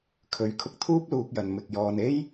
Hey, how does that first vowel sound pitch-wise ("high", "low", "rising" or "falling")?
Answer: rising